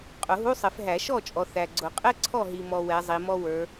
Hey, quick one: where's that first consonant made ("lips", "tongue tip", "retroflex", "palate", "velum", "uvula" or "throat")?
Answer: uvula